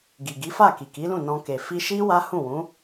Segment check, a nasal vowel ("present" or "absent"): present